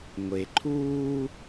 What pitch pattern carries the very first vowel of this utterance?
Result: low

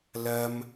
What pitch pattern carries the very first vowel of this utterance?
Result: high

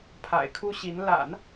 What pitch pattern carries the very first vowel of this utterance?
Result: low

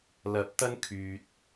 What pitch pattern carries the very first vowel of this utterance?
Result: rising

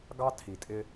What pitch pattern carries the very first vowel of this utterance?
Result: high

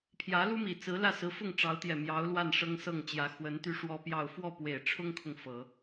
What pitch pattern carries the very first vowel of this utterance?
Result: rising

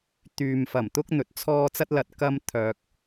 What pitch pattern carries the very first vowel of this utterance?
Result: low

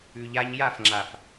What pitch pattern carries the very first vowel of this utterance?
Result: low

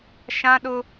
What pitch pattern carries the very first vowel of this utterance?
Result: high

